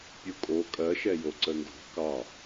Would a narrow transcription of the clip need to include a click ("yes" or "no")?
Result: yes